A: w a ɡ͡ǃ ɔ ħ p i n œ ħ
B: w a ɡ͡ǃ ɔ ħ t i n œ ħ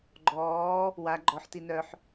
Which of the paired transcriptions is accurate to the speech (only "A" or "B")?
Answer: B